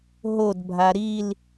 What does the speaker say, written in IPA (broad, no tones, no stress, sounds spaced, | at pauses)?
ɦ o d bʱ a ɾ i l